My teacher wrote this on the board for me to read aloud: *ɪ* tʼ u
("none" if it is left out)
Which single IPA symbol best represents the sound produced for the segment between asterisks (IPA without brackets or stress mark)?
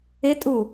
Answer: ɪ